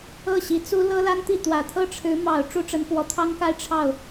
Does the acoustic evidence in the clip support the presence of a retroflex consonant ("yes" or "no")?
yes